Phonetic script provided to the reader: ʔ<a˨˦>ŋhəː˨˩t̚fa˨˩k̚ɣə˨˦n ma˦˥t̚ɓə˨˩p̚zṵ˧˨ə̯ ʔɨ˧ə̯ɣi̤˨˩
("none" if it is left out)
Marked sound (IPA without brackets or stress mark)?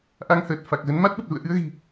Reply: a˧